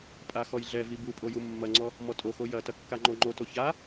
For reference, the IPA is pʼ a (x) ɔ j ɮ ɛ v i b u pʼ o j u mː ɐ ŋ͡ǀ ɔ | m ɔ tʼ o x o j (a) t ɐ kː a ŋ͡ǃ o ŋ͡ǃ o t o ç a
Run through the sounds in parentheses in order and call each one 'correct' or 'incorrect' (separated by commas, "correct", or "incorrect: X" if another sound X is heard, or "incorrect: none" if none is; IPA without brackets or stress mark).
correct, incorrect: ɐ